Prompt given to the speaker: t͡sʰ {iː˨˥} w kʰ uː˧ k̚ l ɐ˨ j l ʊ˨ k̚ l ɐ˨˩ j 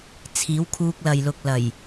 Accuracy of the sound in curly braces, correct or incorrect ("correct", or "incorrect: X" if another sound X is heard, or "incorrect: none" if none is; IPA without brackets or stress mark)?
correct